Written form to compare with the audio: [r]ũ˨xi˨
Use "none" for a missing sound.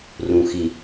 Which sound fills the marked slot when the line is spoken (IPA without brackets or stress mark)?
r